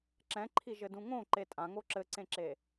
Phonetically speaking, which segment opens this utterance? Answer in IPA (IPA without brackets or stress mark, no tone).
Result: ǁ